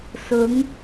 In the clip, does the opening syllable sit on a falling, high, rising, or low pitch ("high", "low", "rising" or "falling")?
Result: rising